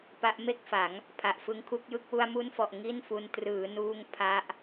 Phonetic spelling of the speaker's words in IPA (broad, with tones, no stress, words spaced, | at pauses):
pa˦˥ʔme˥˩k̚fa˩˦ŋ | pʰa˨˩ʔfɯ˦˥ŋkʰu˦˥k̚jɯ˥˩k̚ wu˧a̯mu˦˥nfɔ˨˩ʔ ŋi˥˩nfu˧n trɯː˩˦nuː˧ŋ pʰa˦˥ʔ